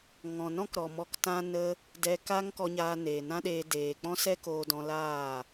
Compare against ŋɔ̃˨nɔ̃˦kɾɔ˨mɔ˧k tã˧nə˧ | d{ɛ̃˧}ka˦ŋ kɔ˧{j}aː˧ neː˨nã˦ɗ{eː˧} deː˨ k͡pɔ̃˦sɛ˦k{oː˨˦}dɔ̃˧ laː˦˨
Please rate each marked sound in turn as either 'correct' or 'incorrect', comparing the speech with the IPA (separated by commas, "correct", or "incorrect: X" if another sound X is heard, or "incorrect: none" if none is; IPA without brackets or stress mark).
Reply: incorrect: ɛ˧, incorrect: ɲ, correct, incorrect: oː˧